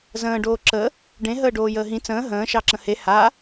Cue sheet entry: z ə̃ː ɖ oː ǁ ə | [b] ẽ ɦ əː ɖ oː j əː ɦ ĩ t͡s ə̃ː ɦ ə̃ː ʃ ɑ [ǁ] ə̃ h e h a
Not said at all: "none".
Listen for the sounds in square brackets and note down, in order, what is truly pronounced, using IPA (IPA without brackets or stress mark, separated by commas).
ɖ, ǁ